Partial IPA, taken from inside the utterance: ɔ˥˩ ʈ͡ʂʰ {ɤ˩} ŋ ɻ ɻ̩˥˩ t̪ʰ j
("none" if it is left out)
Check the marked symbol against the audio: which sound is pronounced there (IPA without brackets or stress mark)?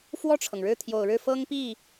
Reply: ɤ˩